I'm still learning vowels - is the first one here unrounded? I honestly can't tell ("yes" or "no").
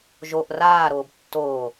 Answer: no